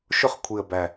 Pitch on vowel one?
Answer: falling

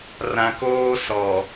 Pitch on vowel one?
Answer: high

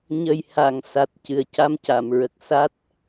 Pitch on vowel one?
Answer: low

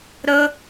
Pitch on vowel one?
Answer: high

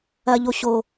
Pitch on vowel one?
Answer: high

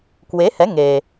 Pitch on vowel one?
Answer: rising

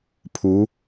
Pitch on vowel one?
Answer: rising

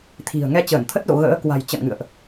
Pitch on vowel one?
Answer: low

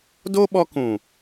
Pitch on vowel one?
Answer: high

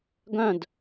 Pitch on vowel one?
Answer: falling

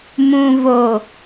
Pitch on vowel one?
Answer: low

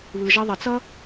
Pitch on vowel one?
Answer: low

